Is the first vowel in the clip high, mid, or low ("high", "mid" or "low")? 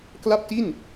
low